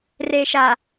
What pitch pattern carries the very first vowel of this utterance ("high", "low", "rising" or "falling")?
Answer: low